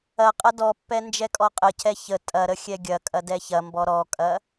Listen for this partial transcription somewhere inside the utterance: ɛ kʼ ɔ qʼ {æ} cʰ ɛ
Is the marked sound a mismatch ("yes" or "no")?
yes